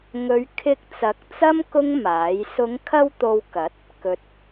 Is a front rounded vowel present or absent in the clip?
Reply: absent